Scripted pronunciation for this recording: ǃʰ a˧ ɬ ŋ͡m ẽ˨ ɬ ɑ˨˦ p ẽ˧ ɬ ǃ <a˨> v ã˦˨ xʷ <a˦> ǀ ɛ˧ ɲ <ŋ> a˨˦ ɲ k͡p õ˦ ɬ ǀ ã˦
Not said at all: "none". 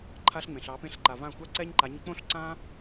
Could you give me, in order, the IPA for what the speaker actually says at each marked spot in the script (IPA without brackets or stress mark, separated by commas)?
a˨, a˦, ǃ